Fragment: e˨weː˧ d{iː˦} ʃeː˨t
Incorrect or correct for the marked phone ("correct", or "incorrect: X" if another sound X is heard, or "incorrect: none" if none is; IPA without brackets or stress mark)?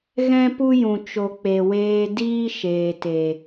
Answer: correct